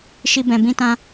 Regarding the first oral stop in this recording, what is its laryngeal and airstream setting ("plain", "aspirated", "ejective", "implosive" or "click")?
plain